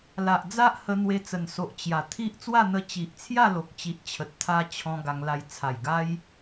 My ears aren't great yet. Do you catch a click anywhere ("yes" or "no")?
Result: no